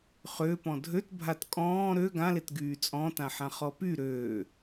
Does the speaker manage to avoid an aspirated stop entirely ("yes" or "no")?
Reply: yes